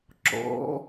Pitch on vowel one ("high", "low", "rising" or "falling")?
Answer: rising